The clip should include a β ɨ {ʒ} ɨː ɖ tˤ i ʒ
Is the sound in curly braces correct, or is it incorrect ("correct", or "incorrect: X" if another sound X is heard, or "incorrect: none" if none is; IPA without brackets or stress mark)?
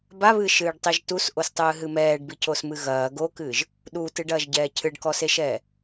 incorrect: ʃ